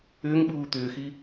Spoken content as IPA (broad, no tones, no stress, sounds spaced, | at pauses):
ʏː ŋ ɓ uː t̪ ʏː x i